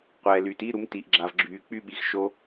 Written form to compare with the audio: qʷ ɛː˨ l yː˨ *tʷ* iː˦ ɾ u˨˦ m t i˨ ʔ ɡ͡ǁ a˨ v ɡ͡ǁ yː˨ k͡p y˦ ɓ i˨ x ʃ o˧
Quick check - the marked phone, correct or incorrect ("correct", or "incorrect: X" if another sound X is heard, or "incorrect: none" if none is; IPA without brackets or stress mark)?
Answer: incorrect: t